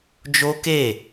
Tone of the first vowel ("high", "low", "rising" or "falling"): high